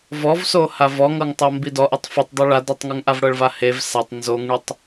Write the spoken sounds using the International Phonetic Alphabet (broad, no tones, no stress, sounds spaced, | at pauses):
v ɔ v s o h a v ɔ ŋ ɤ ŋ tˤ ɤ m b i d ɔ ʔ ɛ tˤ f ɤ tˤ dˤ u ɭ a d ɔ tˤ ŋ u ŋ ʔ a v ɽ ɤ ɭ v a h e v s a tˤ n z o ŋ ɳ u tˤ